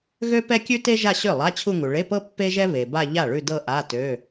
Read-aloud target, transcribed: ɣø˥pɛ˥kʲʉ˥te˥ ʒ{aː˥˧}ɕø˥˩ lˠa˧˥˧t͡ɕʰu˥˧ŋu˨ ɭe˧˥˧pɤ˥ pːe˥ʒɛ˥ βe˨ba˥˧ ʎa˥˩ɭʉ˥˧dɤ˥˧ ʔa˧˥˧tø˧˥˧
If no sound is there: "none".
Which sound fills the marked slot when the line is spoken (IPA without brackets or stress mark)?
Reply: a˥˧